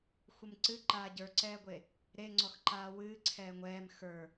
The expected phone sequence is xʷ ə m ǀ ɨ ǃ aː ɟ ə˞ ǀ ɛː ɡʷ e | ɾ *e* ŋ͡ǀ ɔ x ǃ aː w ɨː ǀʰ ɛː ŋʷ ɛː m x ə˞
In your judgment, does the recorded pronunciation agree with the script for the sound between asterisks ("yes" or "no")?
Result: yes